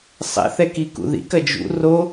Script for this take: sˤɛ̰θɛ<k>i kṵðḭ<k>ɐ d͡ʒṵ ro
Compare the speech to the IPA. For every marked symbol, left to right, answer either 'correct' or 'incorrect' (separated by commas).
correct, correct